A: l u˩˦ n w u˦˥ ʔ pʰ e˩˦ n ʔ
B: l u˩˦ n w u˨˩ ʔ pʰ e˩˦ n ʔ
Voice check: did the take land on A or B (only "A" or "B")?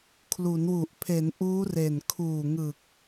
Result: B